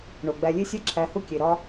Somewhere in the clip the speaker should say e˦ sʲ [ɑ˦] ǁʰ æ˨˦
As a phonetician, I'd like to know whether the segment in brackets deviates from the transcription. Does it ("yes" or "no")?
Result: yes